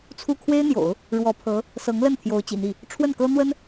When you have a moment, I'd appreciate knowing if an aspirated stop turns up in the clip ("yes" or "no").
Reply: yes